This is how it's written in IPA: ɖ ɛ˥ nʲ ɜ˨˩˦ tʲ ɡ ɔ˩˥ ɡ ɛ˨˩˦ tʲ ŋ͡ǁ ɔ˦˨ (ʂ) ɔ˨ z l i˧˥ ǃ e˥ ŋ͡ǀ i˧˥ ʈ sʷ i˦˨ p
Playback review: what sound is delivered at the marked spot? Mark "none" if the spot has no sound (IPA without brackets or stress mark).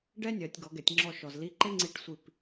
ʃ